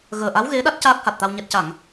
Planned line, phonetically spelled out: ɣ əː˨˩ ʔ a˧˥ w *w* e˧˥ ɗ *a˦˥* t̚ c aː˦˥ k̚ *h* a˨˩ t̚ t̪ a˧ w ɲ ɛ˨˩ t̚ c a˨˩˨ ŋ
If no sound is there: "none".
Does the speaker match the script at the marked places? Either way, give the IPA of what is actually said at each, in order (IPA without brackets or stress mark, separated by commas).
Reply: ɣ, a˦˥, h